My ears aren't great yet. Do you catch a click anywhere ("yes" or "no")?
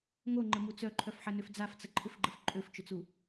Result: yes